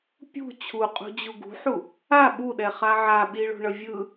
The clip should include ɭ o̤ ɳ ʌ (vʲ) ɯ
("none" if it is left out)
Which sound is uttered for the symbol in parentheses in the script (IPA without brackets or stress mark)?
vʲ